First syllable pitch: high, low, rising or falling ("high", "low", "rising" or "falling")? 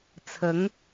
rising